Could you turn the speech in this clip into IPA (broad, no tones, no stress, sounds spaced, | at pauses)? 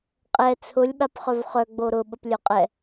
qʼ ɛ t͡sʰ ʊ lʲ ɓ a p χ œ v χ œ ɡ͡b o ɾ ʊ ɓ ə p lʲ œ qʼ ɛ